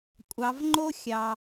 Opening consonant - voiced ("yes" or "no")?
no